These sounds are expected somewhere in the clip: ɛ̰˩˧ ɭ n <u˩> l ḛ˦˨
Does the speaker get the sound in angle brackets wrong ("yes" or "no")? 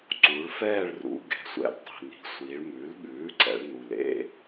no